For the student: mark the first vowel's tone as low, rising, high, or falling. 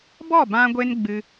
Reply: falling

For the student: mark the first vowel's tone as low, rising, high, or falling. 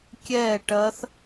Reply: falling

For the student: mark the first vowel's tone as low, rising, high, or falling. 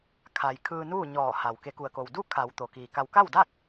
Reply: low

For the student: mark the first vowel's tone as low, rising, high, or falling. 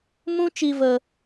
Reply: high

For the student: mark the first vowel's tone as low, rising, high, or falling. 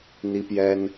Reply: high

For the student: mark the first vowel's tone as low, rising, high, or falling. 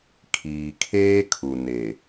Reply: low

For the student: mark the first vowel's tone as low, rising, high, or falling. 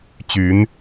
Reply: rising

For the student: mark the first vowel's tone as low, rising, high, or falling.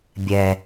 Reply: low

